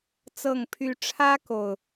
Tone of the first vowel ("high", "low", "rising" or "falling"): low